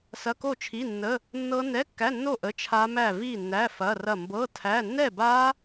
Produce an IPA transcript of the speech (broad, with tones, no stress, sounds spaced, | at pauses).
s ɐ˧˥˧ k o˥˨ t͡ʃʰ i˧˥˧ nː ə˧˥˧ | nː ɤ˦˥ n ɛ˧˥˧ kː æ˧˥˧ nː o˥˨ ʔ ə˧˥˧ t͡ʃʰ a˦˥ m æ˥˨ v i˥˨ nː æ˧˥˧ f ɐ˧˥˧ r ɐ˥˨ m b ɤ˧˥˧ tʰ æ˧˥˧ nː ɛ˥˨ b a˦˥